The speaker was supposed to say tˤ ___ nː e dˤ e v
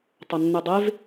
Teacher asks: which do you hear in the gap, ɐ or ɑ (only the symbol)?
ɐ